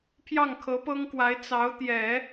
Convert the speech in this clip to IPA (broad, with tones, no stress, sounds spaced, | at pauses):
pʰ j ɑ˥˩ ŋ kʰ ɤ˧˥ p ɤ˥ ŋ k w a˧˥ ɪ̯ t͡s ɑ˧˥ ʊ̯ t̪ j ɛ˨˩˦